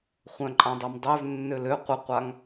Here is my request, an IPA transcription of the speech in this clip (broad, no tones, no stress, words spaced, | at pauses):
χʷœ̃ǃʼãdˤœmdˤøv nːølø qʷəqʷaŋ